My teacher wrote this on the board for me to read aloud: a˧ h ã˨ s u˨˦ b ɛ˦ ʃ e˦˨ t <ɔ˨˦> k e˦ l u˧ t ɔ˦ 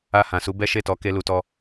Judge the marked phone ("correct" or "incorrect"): correct